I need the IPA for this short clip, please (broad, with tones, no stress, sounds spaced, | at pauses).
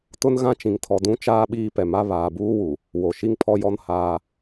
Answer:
t ʊ˦ n ɣ ã˦ t͡ʃ ĩ˨ ŋ tʰ ɔ˨ d ũ˦ t͡ʃ aː˦ ɓ iː˦ p ɛ˨ m a˦ β aː˨ b uː˦ w u˨ | w o˨ ʃ i˦ ŋ pʰ ɔ˦ j ɔ˦ n h aː˦